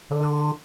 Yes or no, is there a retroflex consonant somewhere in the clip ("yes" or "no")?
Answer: no